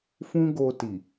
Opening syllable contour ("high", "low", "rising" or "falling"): high